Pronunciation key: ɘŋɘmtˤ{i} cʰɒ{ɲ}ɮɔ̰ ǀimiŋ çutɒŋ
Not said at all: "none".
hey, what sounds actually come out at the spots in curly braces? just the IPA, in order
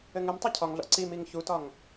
i, ŋ

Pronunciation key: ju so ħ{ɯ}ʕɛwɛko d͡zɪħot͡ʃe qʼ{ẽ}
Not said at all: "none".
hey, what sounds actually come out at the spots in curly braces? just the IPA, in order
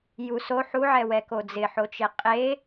u, e

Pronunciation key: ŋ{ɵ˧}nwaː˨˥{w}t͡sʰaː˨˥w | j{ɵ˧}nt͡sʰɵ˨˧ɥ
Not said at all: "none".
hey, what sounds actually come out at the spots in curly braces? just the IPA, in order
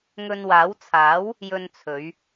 ɵ˧, w, ɵ˧

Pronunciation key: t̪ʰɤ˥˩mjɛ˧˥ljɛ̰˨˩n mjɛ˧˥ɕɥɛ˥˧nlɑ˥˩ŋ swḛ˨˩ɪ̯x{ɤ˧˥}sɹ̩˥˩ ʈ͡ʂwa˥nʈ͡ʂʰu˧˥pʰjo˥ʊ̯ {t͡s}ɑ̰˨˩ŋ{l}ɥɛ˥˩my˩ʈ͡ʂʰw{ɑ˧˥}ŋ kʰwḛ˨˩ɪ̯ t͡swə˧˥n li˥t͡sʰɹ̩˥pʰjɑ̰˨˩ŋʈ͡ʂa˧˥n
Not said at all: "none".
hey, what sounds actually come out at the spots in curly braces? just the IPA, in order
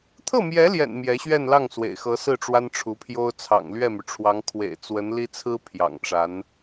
ɤ˧˥, t͡sʰ, l, ɑ˧˥

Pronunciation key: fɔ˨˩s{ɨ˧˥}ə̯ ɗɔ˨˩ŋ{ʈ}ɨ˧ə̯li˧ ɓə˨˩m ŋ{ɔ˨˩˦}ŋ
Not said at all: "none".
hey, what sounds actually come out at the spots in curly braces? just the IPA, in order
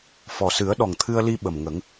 ɨ˨˩˦, t̪ʰ, ə˨˩˦

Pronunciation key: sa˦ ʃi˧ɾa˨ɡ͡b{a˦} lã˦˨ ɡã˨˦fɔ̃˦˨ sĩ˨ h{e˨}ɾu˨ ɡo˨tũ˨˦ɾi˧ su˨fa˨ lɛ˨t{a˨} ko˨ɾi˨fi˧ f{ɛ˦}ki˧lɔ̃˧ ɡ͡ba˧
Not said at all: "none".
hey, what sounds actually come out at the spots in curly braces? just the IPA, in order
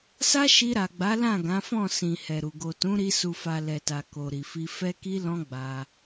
a˨˦, ɛ˨, a˨, ɛ˧

